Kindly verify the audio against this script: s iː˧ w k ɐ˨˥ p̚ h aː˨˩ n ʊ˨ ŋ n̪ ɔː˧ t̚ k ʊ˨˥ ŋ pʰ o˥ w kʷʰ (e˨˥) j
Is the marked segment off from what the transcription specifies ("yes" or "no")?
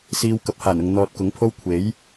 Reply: no